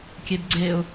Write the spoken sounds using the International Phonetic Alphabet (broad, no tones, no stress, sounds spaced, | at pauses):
kʲ e b ɡ͡ǀ e ʊ̯